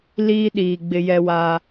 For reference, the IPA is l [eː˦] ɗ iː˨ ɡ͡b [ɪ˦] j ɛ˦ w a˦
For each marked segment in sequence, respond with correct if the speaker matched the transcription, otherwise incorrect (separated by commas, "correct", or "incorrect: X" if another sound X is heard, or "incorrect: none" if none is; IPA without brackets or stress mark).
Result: incorrect: iː˦, correct